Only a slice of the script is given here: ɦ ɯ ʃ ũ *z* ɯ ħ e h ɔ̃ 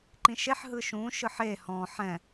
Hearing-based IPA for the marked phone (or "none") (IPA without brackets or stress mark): ʃ